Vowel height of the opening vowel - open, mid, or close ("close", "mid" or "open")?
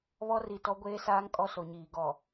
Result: mid